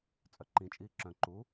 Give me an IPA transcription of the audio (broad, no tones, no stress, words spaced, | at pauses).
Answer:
t͡sʼœǃĩt͡ʃʼiː ǁœ̃ ǃu